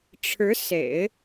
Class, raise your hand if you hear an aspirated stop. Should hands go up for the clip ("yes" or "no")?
yes